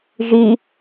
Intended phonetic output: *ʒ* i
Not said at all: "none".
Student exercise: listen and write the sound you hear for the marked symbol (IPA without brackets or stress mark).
ʒ